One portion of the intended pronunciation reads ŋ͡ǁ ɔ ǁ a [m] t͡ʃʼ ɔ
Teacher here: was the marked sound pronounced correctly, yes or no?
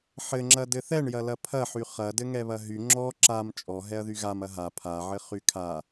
yes